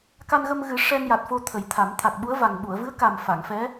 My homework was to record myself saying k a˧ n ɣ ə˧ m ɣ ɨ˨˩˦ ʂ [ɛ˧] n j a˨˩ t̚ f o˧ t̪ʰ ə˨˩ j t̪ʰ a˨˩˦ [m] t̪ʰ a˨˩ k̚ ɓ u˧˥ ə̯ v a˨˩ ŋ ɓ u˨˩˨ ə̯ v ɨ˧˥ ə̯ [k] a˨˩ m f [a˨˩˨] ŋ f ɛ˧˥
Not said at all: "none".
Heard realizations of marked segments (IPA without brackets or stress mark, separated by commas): ɛ˧, m, k, a˨˩˨